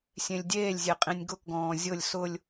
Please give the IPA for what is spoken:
sʲ ẽ lʲ dʲ eː lʲ zʲ e qʼ ĩ nʲ ɡ ʊ k ɡ ɔ̃ː zʲ ʊ lʲ s ʊ lʲ

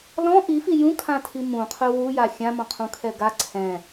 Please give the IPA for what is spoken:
l ɔ̃ ʔ i f i j ũ kʰ ã tʰ i m ũ qʰ ɵ w u j a xʲ ã m ɔ̃ qʰ ũ kʰ ɛ ɡ a ǀʰ ɛ̃

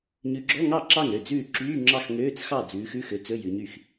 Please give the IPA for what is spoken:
ɲ ʉ˨˦ ɡ͡ǁ ɔ˧˥˧ ŋ ɑ˥˩ ǁ ɑ˥˩ ŋ ɾ ø˥˩ d͡z ʉː˥˩ ǁ yː˧˥˧ ŋ͡ǁ ɑ˥˩ x ŋ øː˧˥˧ t͡s x ɑ˥˩ d͡z ʉː˨˦ x ʉ˧˥˧ x ø˨˦ t͡s ɵ˧˥˧ j ʉ˨˦ ɲ y˥˩ x

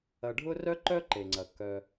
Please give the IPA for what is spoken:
ɐ˨ ɖʱ ʊ˦ r œ˥ ǃ œ˥ ǃ e˩ ŋ͡ǀ ɐ˩ k œ˨

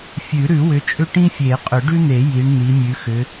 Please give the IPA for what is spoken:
fʲ ʉ˨˩˦ ɾ ʉ˨˩˦ w ʏ˨˦ t͡ʃʼ ʏ˥ ʈ ĩ˥ fʲ e˨˩˦ qʼ ʏ˨˩˦ ɖ ʉ˥ n̪ e˨˩˦ j i˨˦ ɳ n̪ i˨˦ mʲ ʉ˨˦ x ʏ˨˦

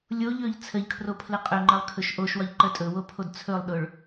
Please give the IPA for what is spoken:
lʲ o ʎ ɵ ʎ t͡sʰ ə ʎ kʰ r o pʰ l ə qʼ ɵ ŋ͡ǃ ə lˠ kʰ ɵ ʃ ʔ o ʃ w ɒ ʎ ǃ ə tʼ ɵ w o pʰ o d t͡sʰ ɵ lˠ ɗ ʊ ɭ

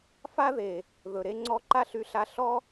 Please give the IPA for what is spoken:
f a˦ ð e˨ | ð ɵ˨ ɾ e˦ ŋ͡ǀ ɔ˦ ǃ a˦ ɬ y˧ ɬ a˧ ɬ ɔ˦

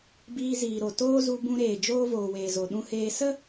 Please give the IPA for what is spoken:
b iː˧ z iː˨ ɾ o˨ t oː˦ z u˧ b ũ˧ ɾ eː˨ d͡ʒ oː˦ v oː˨ w eː˨ z o˨ ɗ ũ˧ h eː˧ s ə˦

